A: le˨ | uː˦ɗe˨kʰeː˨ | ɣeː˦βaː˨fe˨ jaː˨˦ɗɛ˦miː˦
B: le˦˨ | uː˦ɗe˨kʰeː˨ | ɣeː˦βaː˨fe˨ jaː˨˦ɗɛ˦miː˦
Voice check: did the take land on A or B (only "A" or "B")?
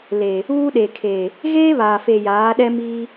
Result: A